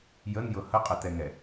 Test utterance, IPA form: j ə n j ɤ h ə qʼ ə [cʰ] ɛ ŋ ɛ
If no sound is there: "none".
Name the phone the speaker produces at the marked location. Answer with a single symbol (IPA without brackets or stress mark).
t